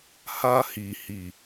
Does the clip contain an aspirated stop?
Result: no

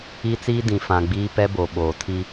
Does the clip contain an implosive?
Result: yes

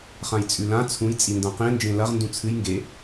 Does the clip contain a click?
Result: no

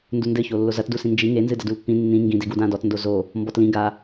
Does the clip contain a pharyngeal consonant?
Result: no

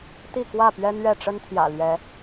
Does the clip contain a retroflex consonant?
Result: yes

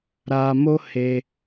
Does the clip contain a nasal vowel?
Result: no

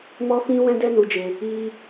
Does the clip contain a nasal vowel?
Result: yes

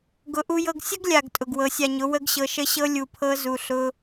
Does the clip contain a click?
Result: no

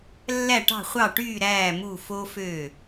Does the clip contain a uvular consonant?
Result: yes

